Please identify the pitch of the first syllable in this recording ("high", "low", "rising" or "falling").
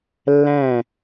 falling